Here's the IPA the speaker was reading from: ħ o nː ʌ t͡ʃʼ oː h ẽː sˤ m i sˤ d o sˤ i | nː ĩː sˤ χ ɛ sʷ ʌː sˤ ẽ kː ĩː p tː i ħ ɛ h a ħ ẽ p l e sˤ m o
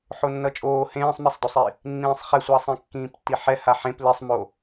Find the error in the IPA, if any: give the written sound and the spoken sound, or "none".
none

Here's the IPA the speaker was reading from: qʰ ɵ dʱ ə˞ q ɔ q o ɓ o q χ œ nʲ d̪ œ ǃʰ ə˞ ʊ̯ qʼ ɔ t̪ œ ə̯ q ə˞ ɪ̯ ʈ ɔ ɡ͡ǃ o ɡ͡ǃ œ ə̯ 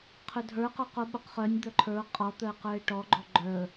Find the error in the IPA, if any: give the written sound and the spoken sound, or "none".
none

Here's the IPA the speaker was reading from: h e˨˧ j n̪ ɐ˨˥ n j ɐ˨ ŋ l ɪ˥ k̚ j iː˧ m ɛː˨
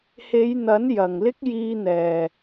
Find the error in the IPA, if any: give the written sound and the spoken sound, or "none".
m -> n̪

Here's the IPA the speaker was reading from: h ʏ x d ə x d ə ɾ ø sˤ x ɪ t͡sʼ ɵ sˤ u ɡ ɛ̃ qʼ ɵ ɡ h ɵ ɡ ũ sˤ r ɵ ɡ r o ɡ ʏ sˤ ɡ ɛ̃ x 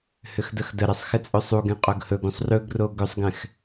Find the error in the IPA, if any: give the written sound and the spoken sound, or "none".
ø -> ɛ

